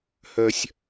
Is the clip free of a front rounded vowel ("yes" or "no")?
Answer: no